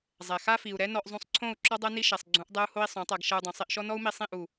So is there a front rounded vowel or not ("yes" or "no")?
no